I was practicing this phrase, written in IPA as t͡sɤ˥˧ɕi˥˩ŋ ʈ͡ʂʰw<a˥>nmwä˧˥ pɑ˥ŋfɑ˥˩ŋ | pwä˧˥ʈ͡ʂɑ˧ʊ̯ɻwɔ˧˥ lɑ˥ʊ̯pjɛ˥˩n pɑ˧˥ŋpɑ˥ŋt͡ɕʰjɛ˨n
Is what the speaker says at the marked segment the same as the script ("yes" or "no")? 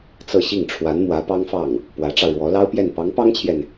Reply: no